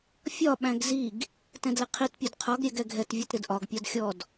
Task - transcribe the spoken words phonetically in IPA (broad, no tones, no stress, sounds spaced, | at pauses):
fʲ ɒ ɓ æ̃ ɡ z i ɡ | t ɛ̃ d l ɪ qʰ i t pʲ ʊ d qʰ ɒ ɡ ɾʲ ɛ ɡ ɛ ɡʱ ɛ t vʲ ɔ t ɾ ɪ d ʔ ɒ ɡ pʲ ɒ d xʲ ɔ d